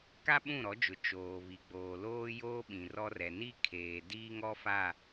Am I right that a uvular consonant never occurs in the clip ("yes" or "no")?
yes